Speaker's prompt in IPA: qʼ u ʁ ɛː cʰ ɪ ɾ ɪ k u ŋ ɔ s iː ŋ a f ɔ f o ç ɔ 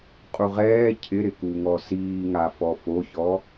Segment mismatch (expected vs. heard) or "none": none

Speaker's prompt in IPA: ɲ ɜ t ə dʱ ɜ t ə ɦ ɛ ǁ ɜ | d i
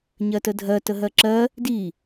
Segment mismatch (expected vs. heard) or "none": ɛ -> ɜ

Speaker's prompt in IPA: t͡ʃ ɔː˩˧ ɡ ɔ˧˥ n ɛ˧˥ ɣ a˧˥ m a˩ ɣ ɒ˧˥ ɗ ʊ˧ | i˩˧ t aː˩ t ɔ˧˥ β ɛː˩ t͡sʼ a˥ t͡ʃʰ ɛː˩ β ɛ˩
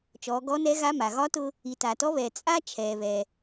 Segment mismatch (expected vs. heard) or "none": ɗ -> t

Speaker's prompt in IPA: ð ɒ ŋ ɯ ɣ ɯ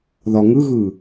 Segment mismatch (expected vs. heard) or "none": none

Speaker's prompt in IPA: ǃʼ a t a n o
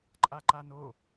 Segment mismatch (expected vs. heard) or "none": t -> ǃ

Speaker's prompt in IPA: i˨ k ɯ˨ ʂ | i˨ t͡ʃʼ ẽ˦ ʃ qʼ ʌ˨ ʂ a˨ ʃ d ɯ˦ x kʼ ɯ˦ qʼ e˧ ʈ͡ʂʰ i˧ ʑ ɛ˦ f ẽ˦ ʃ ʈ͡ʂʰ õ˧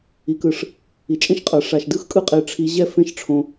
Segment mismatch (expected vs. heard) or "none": none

